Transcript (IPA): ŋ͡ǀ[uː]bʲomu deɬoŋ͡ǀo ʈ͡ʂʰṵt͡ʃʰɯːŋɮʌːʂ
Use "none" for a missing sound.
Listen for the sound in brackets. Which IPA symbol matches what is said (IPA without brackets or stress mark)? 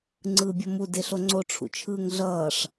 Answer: ɯː